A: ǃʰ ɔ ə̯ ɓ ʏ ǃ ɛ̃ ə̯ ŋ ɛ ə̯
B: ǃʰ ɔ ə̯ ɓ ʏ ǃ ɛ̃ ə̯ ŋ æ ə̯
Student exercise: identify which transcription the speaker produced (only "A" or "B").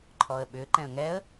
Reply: A